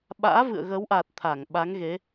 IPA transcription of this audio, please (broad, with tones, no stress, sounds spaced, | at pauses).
ɓ a̰ː˧˥ v ɨ̰˧˨ ə̯ ɣ ə˨˦ w ʔ a˨˩ t̚ t̪ʰ a˧˩ ŋ ɓ a˨˦ ŋ ɣ e˨˦